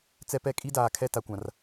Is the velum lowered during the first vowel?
no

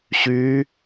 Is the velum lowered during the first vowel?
no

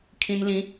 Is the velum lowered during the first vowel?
yes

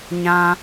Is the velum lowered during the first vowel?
yes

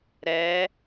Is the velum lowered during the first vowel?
no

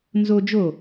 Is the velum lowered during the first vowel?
no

